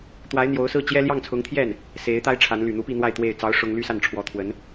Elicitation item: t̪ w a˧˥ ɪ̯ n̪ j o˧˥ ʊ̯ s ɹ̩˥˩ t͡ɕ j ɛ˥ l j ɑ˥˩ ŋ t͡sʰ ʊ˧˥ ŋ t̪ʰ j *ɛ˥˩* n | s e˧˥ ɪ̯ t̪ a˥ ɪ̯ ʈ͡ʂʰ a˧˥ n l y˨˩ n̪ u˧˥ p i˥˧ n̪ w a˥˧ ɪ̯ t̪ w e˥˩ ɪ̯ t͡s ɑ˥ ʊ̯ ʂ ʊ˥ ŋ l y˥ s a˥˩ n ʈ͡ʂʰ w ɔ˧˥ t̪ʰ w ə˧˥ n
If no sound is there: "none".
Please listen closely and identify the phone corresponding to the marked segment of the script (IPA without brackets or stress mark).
ɛ˥˩